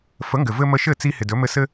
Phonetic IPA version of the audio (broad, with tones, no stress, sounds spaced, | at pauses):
f ə˨˦ ŋ ɡ ɘ˨ v ɘ˧ m ə˧ ʃ ɘ˦˨ t͡s i˧ h ɪ˨ d ɵ˨˦ m ɘ˧ s ɘ˦